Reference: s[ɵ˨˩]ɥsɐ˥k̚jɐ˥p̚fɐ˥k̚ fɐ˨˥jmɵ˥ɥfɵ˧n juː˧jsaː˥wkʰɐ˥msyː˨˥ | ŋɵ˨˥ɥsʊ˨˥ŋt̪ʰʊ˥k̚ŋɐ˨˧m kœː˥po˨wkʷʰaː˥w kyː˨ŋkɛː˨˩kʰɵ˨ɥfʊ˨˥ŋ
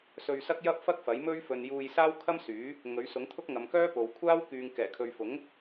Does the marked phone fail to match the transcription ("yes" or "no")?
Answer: yes